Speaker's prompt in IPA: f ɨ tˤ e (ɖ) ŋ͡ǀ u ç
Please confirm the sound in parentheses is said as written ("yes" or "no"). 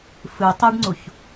yes